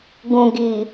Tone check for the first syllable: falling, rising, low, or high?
low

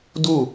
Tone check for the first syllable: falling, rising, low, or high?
falling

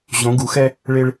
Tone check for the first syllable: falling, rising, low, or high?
rising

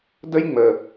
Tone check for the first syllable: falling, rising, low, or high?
high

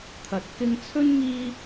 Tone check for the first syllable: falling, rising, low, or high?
rising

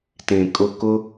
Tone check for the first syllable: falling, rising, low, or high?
low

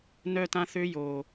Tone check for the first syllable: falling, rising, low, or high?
high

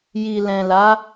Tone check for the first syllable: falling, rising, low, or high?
low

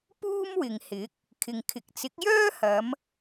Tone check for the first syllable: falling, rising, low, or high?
high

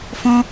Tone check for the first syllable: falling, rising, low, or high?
high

